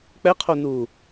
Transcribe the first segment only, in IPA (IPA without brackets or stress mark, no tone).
k͡p